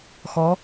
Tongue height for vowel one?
mid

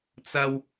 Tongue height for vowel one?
low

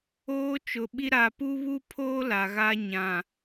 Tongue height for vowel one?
mid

